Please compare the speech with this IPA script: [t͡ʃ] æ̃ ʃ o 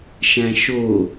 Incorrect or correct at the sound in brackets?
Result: incorrect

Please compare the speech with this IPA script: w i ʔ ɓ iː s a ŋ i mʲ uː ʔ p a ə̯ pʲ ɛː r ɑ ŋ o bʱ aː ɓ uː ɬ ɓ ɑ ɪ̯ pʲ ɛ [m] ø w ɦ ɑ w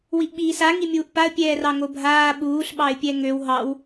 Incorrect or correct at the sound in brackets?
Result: incorrect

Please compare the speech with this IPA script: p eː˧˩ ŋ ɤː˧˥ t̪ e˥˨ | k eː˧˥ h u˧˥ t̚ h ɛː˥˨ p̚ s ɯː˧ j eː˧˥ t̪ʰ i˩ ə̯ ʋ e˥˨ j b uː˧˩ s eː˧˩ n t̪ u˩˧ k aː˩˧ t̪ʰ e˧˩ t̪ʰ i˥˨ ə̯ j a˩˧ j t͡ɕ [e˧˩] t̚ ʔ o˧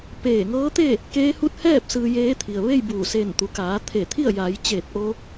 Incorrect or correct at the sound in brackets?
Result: incorrect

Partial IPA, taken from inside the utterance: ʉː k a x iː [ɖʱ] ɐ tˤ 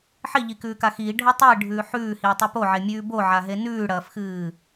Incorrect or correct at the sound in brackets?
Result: correct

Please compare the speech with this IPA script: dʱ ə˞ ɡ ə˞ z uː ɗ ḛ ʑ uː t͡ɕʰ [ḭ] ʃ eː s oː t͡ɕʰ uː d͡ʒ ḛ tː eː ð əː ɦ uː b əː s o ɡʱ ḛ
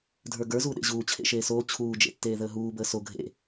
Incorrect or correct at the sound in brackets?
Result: incorrect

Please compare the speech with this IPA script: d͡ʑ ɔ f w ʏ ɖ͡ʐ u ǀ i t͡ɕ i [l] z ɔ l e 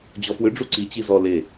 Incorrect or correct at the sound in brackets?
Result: incorrect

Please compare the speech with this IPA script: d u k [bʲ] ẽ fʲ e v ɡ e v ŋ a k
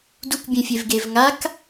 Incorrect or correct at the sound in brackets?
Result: correct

